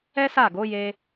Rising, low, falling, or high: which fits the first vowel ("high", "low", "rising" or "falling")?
high